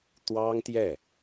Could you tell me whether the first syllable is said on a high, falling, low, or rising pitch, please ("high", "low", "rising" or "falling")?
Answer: high